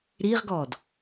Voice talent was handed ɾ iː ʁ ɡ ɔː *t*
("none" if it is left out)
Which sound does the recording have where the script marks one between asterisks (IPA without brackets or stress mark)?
d